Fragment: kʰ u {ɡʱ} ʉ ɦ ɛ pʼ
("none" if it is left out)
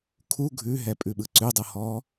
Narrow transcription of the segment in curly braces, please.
ɡʱ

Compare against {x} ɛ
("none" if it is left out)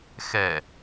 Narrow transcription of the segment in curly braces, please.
x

